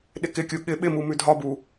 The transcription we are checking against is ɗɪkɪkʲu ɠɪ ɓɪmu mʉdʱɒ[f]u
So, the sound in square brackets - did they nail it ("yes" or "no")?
no